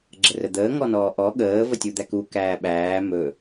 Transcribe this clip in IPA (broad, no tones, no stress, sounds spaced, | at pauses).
ɡ͡ǁ ə r ə d̪ əː ŋ ɔ n ɔː ʔ ɔ ɠ əː v ə tʲ u d̪ æ k u k æː ɓ æː m ɵ